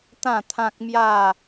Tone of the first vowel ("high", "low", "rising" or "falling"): falling